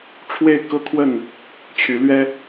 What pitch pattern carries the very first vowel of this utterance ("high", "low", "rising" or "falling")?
falling